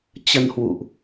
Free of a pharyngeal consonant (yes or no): yes